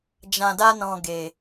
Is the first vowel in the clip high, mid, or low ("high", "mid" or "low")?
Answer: low